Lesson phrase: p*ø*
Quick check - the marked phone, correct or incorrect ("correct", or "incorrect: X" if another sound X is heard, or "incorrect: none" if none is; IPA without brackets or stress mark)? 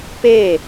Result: incorrect: e